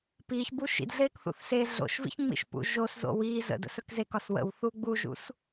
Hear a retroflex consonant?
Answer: no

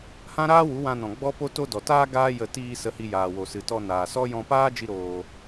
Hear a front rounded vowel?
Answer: no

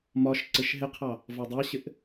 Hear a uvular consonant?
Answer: yes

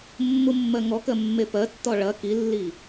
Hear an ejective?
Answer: no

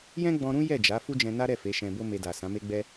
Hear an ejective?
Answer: no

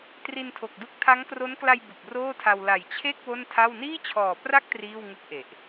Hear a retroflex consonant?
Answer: no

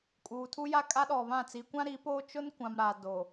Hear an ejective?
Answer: yes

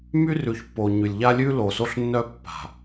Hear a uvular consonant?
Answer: no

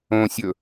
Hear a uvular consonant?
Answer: no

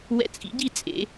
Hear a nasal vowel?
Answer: no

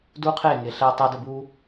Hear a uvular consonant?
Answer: yes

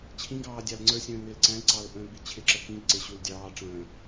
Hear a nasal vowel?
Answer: yes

